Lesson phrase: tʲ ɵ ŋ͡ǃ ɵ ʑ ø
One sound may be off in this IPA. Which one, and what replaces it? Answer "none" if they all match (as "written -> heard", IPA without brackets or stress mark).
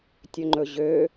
none